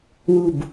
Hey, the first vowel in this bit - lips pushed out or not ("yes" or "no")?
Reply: yes